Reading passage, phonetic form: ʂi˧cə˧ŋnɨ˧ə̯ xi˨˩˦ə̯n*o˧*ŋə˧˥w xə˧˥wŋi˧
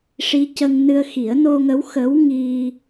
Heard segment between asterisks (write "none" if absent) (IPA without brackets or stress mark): o˧